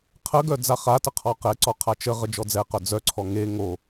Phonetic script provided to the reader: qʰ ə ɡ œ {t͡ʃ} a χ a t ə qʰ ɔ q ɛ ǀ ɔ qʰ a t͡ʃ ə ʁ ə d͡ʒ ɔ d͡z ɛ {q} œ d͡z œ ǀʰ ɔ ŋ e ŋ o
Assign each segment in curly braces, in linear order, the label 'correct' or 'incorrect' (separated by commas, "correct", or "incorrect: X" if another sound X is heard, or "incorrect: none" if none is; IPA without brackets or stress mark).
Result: incorrect: d͡z, correct